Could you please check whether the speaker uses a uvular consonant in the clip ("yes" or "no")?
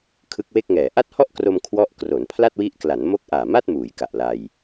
no